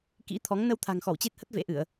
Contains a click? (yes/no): no